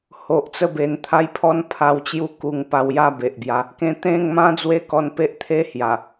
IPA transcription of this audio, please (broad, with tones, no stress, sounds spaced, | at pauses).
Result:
h o˨ ʔ t͡s ə˦ b e˧ n t̪ʰ a˦ j pʰ ɔ˦ n pʰ a˧ w t͡ɕ j u˦ k u˧ ŋ p a˧ w j a˥˧ b e˨ ʔ b j a˧ | k ẽ˧ t̪ ẽ˥˧ ŋ m ã˦ d͡z w e˦ k ɔ˧ n p e˦ ʔ t̪ʰ e˦ h j a˨˩